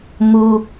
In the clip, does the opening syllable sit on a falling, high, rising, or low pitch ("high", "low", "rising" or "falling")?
low